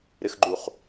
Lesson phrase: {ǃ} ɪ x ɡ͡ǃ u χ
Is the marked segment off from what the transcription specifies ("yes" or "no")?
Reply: yes